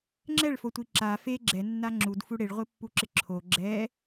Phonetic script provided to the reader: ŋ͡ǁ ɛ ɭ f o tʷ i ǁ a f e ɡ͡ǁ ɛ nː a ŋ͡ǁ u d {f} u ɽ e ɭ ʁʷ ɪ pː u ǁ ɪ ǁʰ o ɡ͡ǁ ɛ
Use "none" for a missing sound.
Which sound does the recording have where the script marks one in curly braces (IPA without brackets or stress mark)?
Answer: f